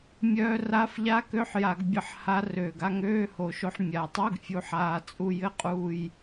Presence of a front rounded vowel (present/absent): present